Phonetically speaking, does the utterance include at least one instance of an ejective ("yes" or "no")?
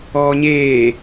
no